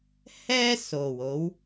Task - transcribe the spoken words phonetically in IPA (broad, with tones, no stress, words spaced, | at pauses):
hɛː˥so˨˩wo˨˧w